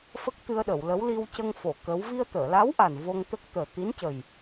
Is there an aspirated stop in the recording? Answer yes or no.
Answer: no